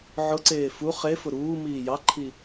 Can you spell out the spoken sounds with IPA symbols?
ʕ ʊ ǀ eː f u χ e f ʊ ɾ uː m iː j ɑ ǃʰ i

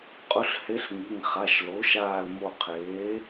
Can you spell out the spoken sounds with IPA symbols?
qʼ ʊ˧˥ ɬ h e˧˥ ɬ ŋ i˩˧˩ ŋ χ a˩˧˩ ʃ l o˩˥ ʃ aː˧˩ l m o˧˩ qʰ eː˩˥

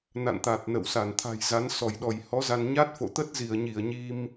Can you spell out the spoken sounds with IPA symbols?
n a̰˧˨ n t̪ a˨˩ t̚ n ə̰˧˨ w s a˧˩ n t̪ʰ a̤˨˩ j z a˨˦ n s ɔ˧˩ j ɗ ɔ˧˩ j h ɔ˨˦ z a˧ n ɲ a˦˥ t̚ f o̰˧˨ t̪ ə˦˥ t̚ z i˧˩ ə̯ ɲ i˧˩ ə̯ ɲ i˧ m

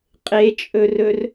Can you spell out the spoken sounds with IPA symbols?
qʼ e t͡ʃʼ ɵ r ɵ r

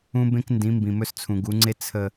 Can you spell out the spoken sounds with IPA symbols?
ũ˦ b ẽ˦ k n d ĩ˨˦ m b ĩ˨ m ɵ˦ s t͡sʰ ũ˨ ɡ u˨˦ ŋ͡ǀ e˦ t͡sʰ ə˨

